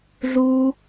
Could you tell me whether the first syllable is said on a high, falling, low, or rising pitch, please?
high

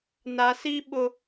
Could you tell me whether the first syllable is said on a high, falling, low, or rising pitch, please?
low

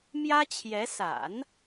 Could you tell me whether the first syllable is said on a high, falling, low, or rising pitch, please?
high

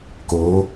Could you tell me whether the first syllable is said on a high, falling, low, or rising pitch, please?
rising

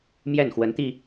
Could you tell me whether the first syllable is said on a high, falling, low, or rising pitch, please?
falling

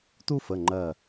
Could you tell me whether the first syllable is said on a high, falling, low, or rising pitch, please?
high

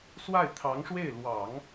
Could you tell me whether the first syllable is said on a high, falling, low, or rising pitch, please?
falling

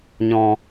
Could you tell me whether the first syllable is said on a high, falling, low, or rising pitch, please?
low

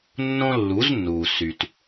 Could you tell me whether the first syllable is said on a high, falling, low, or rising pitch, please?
high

